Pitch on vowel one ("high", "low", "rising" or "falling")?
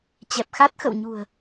low